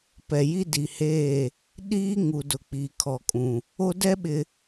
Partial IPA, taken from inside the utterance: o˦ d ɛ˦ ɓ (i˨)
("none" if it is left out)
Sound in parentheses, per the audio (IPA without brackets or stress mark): ɪ˨